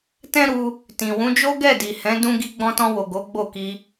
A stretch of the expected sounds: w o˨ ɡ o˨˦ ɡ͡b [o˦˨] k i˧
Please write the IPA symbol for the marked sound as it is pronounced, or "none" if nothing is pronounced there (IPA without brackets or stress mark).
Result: o˦˨